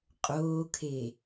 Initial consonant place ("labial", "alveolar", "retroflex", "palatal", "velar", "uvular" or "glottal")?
uvular